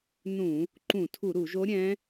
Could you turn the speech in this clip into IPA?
n ũ˧˩˧ | ǃ ũ˧˩˧ tʰ u˧˩˧ ɾ u˧˩˧ ʒ o˧˥ ɾʲ ɛ̃˧˥

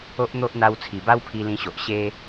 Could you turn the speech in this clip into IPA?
o˦ ʔ n̪ o˦ ʔ n̪ a˧ w t͡sʰ i˨˩ b a˦ w pʰ i˧ l ĩ˧ ɕ o˨ ʔ ɕ e˧

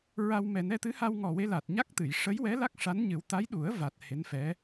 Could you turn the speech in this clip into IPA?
ɹ a˧ w m ɛ˨˩ n ɛ˧ t̪ ɨ˧˥ h a˧ w ŋ ɔ˨˩ w e˧ l a˨˩ t̚ ɲ a˦˥ k̚ t̪ ɨ˨˩˨ j ʂ ə˧˥ j w ɛ˧˥ l a˦˥ k̚ ʂ a˧˥ n ɲ ɨ˨˩˦ w t̪ a˧˥ j ɗ u˨˩˦ ə̯ v a˨˩ t̚ h e˧˥ n f ɛ˧˥

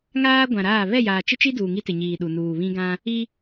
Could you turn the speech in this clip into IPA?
ŋ aː˦ ɡʷ ã˨ ɾ aː˦˨ β ɛ˦˨ j aː˨ t͡ʃ ɪ˦ t͡ʃ i˦ d uː˨ ŋ i˦ t ɪ˨ ɲ iː˨ ɗ u˨ n uː˨ β ĩ˦ ɡ ã˦ | i˦

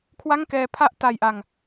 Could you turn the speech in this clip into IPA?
kʰ w a˥˩ ŋ k ɛː˧ pʰ a˥˩ ʔ t a˧ j ʔ a˧ ŋ

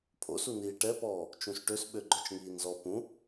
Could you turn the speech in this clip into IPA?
pʰ o̰ s u n iː ʈ ɛ p ɔː | t͡ʃ ũ s ʈ ø s ɓ ø ɡ͡ǃ œ t͡ʃ ŋ iː n z ɔ p ũ

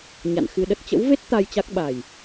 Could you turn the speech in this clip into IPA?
ɲ a̰˧˨ n x ɨ˧ ɗ ə˦˥ t̚ t͡ɕ ə̰˧˥ w v e˦˥ t̚ t̪ a˧ j t͡ɕ a˦˥ k̚ ɓ a˨˩ j

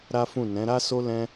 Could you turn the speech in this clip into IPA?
ɾ a˦ f ũ˦˨ n ɛ̃˨˦ ɾ a˦ s o˦ l ɛ̃˦

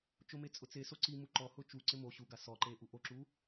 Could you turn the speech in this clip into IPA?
t͡ʃ ʊ m e t͡sʼ ʊ t͡s e s o ǀ i m u ǃ ɔ h ʊ t͡ʃ u ǀ ɪ m o ɕ u ɡ a s ɔ ǃ e ʔ u ʔ o ǁ u

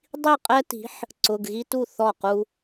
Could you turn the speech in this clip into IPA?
dˤ i˥˩ qʼ ɛ˦ t i̤˨˥ ħ | ǀ ʊ˩˧˩ ɡ ɣ i˦ t u˥˩ θ ɔ˥˩ q u˦

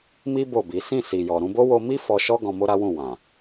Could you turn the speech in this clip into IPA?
m i˦ b o˦˨ b i˨˦ s ĩ˦˨ s i˨ j ɔ˨ ɾ ũ˧ b o˦ w o˧ m i˦ f ɔ˧ ʃ ɔ˦ ɡ ɔ̃˧ m o˦ ɾ a˦ w ũ˦˨ w ã˨

